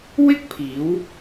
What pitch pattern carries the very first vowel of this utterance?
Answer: high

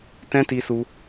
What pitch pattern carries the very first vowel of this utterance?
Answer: high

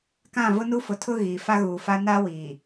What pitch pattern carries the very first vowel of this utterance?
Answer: falling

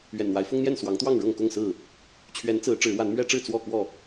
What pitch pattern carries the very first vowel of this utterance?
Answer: low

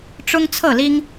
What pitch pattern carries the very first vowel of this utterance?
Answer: high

